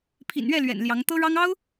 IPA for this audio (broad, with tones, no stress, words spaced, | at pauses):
pʰḭ˨˩nɥɛ˥˩ lɥɛ̰˨˩n ljɑ˧˥ŋ t̪ɤ˥ɻɑ˥ŋ ɑ˥ʊ̯